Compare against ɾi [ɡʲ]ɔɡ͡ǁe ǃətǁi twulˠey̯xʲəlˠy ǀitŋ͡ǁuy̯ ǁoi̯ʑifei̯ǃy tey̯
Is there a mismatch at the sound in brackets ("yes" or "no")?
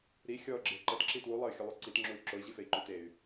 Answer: yes